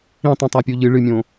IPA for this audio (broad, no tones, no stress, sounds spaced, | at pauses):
ĩ tˤ ũ tˤ a pʲ u ʎ ɨ ɭ ɨ mʲ õ